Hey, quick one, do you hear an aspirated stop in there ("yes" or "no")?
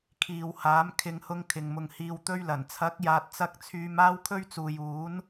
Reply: yes